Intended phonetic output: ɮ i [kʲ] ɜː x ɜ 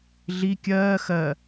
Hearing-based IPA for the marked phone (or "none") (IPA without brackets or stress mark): kʲ